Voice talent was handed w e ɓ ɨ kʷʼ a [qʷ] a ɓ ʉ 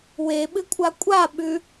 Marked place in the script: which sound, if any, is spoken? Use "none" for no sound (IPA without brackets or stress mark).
kʷʼ